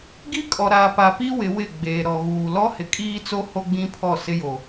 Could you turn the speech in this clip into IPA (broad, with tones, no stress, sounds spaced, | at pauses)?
ɡ i˦ kʼ ɔ˨ ɾ aː˨ p a˨ p i˦ w ɪ˨˦ w ɪ˦˨ ɡ͡b eː˨ ɾ ɔ˨ ɣ uː˨ l ɔ˦ h ɪ˨ kʼ iː˦ t͡s o˦ h o˦ ɡ͡b ĩ˦ pʰ ɔ˦˨ s ɪ˦ j o˨